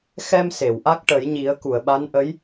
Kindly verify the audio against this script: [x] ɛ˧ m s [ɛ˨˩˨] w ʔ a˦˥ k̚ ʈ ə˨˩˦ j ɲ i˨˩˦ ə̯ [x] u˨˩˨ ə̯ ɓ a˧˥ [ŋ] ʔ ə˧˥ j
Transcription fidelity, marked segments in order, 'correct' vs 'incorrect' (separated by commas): correct, incorrect, incorrect, incorrect